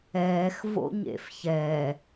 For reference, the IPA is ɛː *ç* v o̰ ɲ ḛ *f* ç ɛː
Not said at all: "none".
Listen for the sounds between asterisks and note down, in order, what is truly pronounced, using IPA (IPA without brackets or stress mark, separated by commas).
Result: x, f